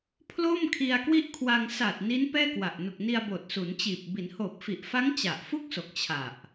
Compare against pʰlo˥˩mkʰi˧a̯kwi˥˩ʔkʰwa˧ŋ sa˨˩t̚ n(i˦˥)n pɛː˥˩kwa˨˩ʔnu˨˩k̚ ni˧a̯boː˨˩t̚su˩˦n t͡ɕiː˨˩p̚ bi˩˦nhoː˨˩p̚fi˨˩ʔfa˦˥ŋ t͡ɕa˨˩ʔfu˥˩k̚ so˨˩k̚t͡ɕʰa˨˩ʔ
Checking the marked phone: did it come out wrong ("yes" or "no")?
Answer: no